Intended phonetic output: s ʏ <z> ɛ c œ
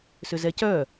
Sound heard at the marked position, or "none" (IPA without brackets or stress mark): z